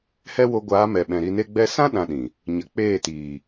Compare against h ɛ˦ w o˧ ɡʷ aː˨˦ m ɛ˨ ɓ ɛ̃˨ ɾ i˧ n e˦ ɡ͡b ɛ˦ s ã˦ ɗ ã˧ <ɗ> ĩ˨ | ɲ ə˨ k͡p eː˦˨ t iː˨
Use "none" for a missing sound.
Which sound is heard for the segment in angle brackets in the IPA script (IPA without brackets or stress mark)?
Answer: ɗ